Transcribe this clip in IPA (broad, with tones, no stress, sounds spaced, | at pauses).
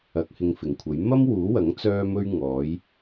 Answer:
ɐ˨˥ k̚ h ɪ˧ ŋ f ɪ˨˩ ŋ kʷʰ ɐ˨˥ j m ɐ˥ m w uː˨˥ w ɐ˨˥ ŋ t͡s œː˥ m ɵ˥ ɥ ŋ ɔː˨˥ j